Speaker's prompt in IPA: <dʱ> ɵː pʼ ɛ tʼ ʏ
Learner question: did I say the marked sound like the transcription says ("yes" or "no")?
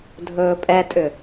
yes